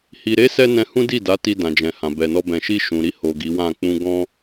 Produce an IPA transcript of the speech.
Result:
h i˨ ɾ e˨˦ s ɛ˦ n ɛ̃˧ h ũ˦ d i˦˨ d a˨˦ t i˧ d ã˨ d͡ʒ ɛ̃˨ h ã˨ b ɛ˨ n ɔ˧ b ɛ̃˨ ʃ i˧ ʃ ũ˨ ɾ i˧ h o˨ ɡ i˨˦ w ã˦˨ k͡p ũ˧ ɡ ɔ̃˦

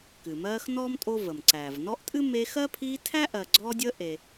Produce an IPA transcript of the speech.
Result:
k ɨ˩ m ɜː˦ x n ɔː˥ m tʼ o˥ v ə˩ m ǀ æː˩ v n ɔ˦ ʔ tʼ ɨ˥ m e˦ x ɜ˥ pʰ iː˦ tʰ æ˥ ʔ ɜ˨ ɡ͡ǀ ɔ˦ dʲ ə˦ ʔ e˨

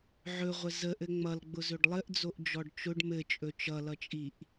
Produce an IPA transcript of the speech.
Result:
ʕ ɵ ʁʷ ə z ə ʔ ɘ ŋ͡m ʌ l ɡ͡b ʊ z ɵ ɖ lˠ ɘ ʔ d͡z o ʔ d͡ʒ ɔ ɖ t͡ʃ ʊ ɖ m ɘ t͡ʃʼ ɵ t͡ʃ ʌ l ʌ t͡ʃʼ i ʔ

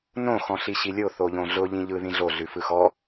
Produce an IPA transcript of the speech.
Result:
n õ x ɔ̃ ɬ i ɕ i lʲ o θ o ʎ õ ɮ ʊ ʎ ĩ ʎ ɯ ð ĩ ɮ o ɮ ʉ f ɯ x ɔ

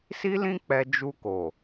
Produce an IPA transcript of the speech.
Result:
s i˦ l ĩ˦ k͡p ɛ˧ d͡ʒ u˧ k o˨

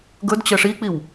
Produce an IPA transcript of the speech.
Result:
ɡ ɵ d t͡ɕ ə ʂ i k͡p i w

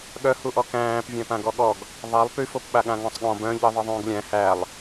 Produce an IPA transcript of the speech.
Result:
ɠ œ h u ʔ ɔ k æ̃ː p vʲ æ̃ p ã ɡ ɔ ɠ ɔ ɡ | ðˤ æ lˠ p y f o p ɓ a ɠ ã ŋ ɔ̃ sˤ ɠ ɔ̃ b œ̃ ʎ i ðˤ i ðˤ ũː ɡ lʲ æ̃ h æ lˠ

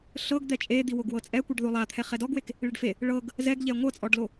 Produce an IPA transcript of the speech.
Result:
ɬ ɤ ɡ d̪ ɛ t͡ʃʼ e d̪ i w o ɡ w ɤ t͡sʼ ɛ kʷ i ɖ ð o lˠ a t̪ʰ ɛ χ ɛ d ɔ ɡ w e k | ɭ e ɖ f e | ɭ ɤ ɡ | z ɛ ɡ ʎ ɛ ŋʷ ɤ t͡sʼ ɔ ɖ l o

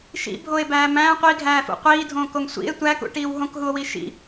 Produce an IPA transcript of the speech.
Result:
ʃ ḭ bʱ o e̯ b æː m æ̃ qʷ i ɡʱ æː f ṵ qʷ iː dʱ õː k o ŋ sʷ ḭ e̯ tʷ æ k ṵ ʈ iː w ɦ õ k ɦ u o̯ w i ʃ ḭ

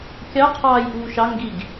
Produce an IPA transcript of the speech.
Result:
kʲ ɑ qʰ ɑː j ʔ uː ʃ ɑ ŋ ɡ i ɡ

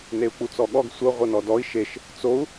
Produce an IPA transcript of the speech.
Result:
n e u̯ k͡p u t͡s ɔ ɠ ɔ ɡ sʷ ɤ ʁʷ ɤ n ɔ d ɔ i̯ ʃ e ʃ | t͡s o u̯

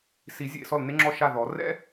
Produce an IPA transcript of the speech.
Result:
s i˨˩˦ zʲ ḛ˥˨ s ɔ˥˨ l n e˥ ŋ͡ǁ ɔ˥˨ ʃ a˥˨ ð ɔ˨˩˦ r ɛ̰˥

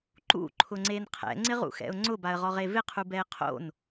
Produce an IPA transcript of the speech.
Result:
ǃ ṵ ǃʰ ʊ ŋ͡ǀ e n qʰ ɛ̰ ŋ͡ǀ ɪ ʁ ṵ x ɛ̰ ʊ̯ ŋ͡ǀ ʊ b a ə̯ ʁ ɔ ʁ e v ɪ qʰ u b ɛ ɪ̯ qʰ o̰ n

